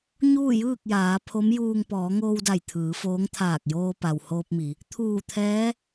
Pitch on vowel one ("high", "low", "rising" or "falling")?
falling